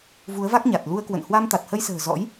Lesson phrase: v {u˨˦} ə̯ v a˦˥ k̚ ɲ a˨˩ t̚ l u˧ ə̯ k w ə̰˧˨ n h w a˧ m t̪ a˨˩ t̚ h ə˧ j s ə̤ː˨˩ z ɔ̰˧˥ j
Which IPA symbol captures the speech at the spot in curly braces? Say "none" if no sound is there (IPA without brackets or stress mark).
u˨˦